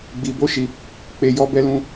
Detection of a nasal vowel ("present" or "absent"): present